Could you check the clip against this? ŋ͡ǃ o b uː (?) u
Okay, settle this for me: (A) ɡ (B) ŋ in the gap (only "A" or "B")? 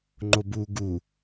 A